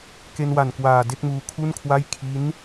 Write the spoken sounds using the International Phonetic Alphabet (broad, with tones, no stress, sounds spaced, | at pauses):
k e˧ n w a˨˩ n k w aː˨˩ d e˥˩ k̚ m uː˧ kʰ u˥˩ n kʰ w a˥˩ j kʰ i˦˥ n